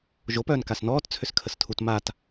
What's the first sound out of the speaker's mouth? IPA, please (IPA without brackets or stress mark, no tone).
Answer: ʒ